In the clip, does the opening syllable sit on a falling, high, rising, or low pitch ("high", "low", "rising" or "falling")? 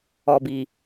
low